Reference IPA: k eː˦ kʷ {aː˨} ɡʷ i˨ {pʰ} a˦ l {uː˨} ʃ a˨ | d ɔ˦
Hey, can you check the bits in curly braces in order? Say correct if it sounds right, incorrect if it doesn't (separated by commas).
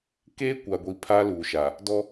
incorrect, correct, correct